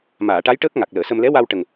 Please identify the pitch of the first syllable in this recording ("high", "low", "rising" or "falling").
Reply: low